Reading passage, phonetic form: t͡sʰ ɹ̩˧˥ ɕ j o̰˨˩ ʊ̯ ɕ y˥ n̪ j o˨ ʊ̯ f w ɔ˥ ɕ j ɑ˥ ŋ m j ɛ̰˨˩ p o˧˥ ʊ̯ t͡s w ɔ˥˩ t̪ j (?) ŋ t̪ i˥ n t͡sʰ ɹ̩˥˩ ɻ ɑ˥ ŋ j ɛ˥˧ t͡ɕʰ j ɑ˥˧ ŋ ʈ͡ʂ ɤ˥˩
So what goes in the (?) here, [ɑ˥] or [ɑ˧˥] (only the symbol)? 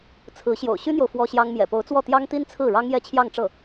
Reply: ɑ˥